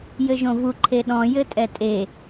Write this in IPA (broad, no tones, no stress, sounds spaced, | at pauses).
j ɘ ʒ õ v u ǃʰ e ɗ ɔ̃ j ɘ tʼ ɛ tʼ e